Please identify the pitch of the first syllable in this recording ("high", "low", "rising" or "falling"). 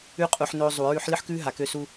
high